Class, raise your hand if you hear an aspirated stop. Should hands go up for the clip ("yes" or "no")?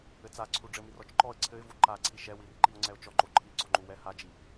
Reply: yes